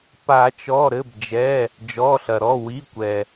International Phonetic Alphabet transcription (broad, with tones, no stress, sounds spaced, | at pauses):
p a˨˩˦ t͡ʃ ɔ˩˧˩ ɾ ɘ˩˧˩ b d͡ʒ ɛ˩˧˩ | d͡ʒ ɔ˩˧˩ ɬ ɐ˩ ɾ ɔ˩˧˩ w i˩˧˩ kʷ ɛ˩